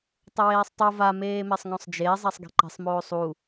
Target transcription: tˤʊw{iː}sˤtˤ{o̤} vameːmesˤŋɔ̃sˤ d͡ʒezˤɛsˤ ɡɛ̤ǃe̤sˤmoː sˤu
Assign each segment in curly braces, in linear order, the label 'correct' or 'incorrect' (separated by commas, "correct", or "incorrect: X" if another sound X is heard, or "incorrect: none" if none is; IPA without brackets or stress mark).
incorrect: eː, incorrect: o